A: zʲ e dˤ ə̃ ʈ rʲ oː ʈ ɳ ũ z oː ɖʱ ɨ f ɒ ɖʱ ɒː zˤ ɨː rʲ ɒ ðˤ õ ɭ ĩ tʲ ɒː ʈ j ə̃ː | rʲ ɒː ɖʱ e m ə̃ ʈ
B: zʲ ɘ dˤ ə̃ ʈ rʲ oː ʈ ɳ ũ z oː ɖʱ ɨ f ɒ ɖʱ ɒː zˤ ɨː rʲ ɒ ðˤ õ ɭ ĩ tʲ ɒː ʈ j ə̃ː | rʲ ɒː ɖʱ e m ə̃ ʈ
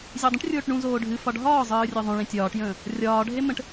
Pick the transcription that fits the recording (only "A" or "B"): A